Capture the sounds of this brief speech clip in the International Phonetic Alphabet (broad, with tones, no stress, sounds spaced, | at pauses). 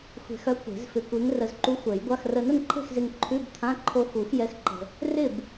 xʷ e̤˧ x œ˧˥ kʷ e̤˨˩˦ z f ɪ˧ kʷ e˧˥ ŋ r ə˧ z ǃ u˧˥ xʷ ɛ˨˩˦ j ɡʷ a˧˥˧ x r ə˧ n ə˥˨ n ǃʰ e̤˥˨ x z ɪ˧ ŋ ǃʰ ʉ˧˥˧ b t̪ʰ ã˧˥˧ ǃʰ o˧ x u˨˩˦ x j ɛ˧˥ x ǃ ə̤˧ | r ɪ˥˨ b